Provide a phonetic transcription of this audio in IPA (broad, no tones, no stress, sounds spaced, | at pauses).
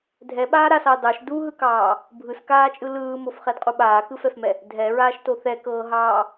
dʱ ɛ ɓ aː ɾ a s ɑ d ɑ ʃ d u ɦ ɯ k ɑː | bʱ ɯ s k aː t͡ʃʼ ɯ l ɯː m o f χ ɛ d qʼ u ɓ aː k ɯ f ɛ f m ɛ | dʱ ɛ ɹ aː ʃ t o θ ɛ k ɤː ɦ ɑː